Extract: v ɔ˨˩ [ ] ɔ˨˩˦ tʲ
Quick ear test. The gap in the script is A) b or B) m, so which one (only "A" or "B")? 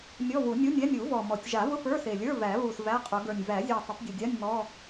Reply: B